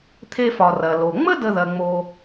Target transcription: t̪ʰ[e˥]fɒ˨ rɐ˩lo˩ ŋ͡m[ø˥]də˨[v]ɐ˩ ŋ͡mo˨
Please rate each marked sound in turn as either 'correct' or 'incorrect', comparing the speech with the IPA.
correct, incorrect: ə˥, incorrect: ð

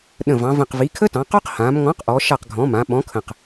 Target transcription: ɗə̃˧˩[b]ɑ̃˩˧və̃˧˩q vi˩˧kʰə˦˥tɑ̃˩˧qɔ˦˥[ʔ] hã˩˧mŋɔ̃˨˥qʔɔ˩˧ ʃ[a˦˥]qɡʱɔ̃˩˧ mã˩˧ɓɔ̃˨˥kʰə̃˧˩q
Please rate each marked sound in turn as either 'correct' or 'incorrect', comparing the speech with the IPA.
incorrect: v, incorrect: q, incorrect: a˧˩

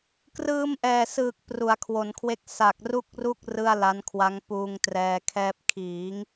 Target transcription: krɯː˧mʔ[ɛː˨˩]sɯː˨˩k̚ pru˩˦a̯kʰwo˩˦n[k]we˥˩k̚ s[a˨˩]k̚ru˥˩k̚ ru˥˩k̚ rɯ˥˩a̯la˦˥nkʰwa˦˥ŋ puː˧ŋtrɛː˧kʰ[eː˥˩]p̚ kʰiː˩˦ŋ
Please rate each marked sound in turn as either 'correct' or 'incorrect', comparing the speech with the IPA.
correct, incorrect: kʰ, correct, incorrect: ɛː˥˩

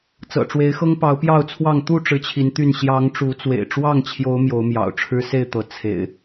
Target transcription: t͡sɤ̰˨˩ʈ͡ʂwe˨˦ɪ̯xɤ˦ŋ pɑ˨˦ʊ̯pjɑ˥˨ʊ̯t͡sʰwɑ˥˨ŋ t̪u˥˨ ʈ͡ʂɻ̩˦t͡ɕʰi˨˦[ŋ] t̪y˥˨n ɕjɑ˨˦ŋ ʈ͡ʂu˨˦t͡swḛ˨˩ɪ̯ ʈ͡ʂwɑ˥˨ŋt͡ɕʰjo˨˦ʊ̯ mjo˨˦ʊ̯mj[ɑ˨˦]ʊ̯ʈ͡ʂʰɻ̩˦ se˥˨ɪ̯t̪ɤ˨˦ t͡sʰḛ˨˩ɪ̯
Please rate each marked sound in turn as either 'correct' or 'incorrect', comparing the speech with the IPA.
incorrect: n, incorrect: ɑ̰˨˩

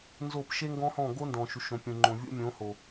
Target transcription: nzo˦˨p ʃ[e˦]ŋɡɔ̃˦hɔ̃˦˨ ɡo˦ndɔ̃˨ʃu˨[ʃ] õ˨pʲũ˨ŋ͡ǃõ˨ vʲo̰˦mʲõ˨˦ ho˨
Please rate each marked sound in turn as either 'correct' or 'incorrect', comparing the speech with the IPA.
correct, correct

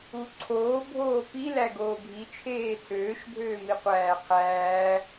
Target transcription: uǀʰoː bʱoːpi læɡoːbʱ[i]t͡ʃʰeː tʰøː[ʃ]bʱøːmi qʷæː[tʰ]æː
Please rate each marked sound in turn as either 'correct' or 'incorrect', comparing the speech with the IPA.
correct, correct, incorrect: qʰ

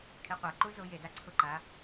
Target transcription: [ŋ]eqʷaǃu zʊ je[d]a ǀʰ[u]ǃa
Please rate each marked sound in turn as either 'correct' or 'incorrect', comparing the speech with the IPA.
incorrect: kʰ, correct, incorrect: ʊ

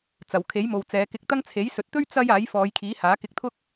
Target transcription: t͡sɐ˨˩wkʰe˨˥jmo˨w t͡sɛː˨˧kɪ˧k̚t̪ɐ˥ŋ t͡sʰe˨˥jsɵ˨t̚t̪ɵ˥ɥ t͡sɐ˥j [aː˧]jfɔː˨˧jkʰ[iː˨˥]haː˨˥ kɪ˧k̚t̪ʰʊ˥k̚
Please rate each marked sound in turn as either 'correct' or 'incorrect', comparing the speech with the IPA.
incorrect: aː˨˥, correct

